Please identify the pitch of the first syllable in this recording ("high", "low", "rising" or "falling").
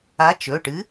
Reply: rising